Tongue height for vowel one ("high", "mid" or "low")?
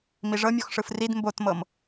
high